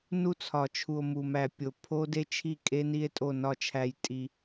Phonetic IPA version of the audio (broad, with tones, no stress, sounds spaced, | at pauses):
n u˦ t͡sʰ ɒ˨ t͡ʃʰ u˨ o̯ m u˨ m æ˨ pʲ o˨ pʰ o˦ d e˦ t͡ʃʰ i˦˨ kʼ e˦ n i˦ e̯ tʼ o˦˨ n ɒ˦˨ t͡ʃʰ æ˦ j tʼ i˦